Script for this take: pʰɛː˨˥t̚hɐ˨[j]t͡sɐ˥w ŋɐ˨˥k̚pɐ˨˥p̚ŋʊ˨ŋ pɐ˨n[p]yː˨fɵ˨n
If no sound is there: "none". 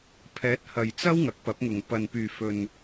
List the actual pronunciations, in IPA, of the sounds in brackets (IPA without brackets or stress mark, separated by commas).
j, p